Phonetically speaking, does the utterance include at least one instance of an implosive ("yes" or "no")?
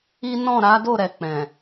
no